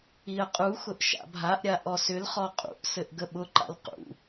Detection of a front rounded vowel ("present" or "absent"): present